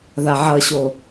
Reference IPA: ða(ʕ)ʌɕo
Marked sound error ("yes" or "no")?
no